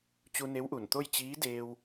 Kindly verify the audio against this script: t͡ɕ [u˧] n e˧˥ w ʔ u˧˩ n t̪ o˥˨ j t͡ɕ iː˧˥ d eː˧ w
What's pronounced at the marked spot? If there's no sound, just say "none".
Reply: u˧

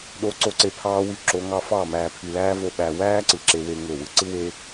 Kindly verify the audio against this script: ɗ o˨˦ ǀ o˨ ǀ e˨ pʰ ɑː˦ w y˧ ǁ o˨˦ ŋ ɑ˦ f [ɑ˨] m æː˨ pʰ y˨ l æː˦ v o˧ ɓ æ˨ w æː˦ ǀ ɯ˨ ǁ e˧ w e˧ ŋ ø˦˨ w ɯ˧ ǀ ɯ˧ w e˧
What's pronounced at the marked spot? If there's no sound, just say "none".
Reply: ɑ˦˨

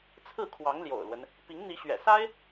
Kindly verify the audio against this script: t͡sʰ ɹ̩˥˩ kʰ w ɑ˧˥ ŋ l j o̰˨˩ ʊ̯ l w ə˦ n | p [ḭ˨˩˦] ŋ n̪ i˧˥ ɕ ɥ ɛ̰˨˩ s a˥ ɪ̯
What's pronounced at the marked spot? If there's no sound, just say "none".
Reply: i˧˥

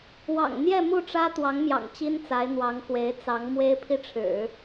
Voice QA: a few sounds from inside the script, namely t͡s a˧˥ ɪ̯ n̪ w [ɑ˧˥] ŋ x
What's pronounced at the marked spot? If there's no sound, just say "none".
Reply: ɑ˧˥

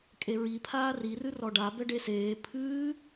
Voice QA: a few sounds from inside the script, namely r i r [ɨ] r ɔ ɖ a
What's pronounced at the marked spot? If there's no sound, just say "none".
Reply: ɨ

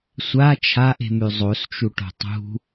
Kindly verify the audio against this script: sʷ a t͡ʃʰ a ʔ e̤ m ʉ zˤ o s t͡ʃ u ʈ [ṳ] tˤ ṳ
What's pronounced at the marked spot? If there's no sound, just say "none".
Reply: o̤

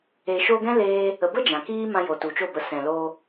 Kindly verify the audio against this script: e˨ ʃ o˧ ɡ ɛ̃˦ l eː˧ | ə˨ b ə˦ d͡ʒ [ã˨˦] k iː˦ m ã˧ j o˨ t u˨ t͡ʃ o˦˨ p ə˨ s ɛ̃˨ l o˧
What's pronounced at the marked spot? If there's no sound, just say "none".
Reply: ã˨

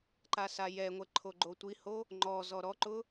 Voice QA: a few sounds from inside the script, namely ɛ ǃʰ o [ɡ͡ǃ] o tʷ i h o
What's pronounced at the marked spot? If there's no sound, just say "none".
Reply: ɡ͡ǃ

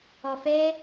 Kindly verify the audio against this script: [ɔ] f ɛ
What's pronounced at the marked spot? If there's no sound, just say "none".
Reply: ɔ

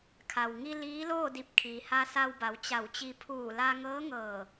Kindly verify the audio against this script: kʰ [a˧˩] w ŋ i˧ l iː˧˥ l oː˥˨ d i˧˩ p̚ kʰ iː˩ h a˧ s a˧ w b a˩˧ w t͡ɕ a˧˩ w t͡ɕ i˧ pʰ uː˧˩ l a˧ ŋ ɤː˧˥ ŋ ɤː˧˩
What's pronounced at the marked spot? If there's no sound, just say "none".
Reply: a˩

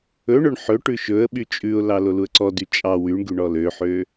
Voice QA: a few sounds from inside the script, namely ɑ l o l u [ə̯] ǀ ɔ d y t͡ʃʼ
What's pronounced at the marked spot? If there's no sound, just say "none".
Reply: ə̯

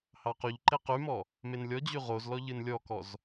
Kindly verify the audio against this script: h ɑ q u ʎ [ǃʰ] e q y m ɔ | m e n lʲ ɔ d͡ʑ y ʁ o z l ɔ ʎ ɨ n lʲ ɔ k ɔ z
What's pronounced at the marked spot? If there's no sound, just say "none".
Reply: ǃ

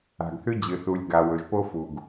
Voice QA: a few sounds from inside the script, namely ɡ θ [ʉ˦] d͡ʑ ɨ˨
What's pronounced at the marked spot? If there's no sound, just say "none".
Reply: ʉ˧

